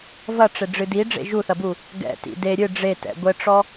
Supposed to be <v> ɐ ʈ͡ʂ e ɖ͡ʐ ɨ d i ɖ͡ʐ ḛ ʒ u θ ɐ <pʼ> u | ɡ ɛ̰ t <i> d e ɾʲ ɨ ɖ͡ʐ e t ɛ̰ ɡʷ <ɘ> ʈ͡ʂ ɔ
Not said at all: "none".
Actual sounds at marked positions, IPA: v, b, ḭ, ɘ

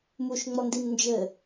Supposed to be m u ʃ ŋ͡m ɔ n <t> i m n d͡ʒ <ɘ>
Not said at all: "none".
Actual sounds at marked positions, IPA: d, ɘ

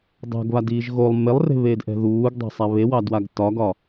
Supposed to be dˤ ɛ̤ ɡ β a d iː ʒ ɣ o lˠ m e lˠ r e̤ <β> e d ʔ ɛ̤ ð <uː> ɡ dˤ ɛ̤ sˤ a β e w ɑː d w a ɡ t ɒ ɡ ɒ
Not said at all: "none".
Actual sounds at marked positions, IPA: β, uː

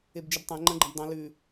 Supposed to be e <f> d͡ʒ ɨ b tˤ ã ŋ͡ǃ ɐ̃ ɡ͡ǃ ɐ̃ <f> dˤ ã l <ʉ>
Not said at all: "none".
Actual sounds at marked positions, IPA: b, b, ʉ

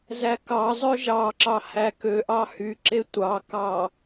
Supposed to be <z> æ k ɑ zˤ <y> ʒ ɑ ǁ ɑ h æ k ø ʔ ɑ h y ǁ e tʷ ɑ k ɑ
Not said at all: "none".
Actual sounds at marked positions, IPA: z, ø

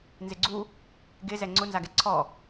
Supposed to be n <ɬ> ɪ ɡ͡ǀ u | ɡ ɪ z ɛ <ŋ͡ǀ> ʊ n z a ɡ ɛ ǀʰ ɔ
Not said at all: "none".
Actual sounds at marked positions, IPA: z, ŋ͡ǀ

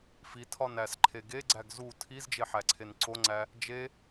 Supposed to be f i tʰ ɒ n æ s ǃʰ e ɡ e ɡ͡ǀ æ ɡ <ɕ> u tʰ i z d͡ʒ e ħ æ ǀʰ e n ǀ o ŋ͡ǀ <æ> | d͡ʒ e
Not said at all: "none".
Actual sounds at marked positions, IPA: z, æ

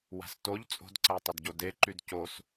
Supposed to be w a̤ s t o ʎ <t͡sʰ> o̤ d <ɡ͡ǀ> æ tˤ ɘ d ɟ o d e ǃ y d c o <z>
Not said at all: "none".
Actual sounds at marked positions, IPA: t͡sʼ, ǀ, s

